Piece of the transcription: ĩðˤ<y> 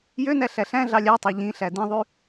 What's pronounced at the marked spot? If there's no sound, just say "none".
y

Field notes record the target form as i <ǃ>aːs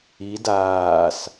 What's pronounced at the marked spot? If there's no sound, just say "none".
d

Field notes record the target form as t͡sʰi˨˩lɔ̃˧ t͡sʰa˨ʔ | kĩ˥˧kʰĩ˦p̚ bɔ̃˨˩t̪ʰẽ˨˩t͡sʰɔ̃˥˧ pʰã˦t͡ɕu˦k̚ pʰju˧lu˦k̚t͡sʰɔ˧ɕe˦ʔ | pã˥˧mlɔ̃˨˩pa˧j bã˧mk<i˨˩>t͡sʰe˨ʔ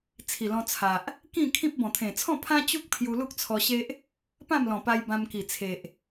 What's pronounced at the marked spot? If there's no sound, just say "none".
i˨˩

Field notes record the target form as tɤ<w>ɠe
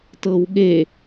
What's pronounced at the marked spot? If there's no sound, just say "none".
w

